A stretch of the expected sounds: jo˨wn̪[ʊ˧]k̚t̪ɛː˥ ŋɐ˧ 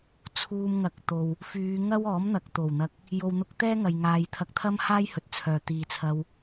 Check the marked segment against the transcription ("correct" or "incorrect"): correct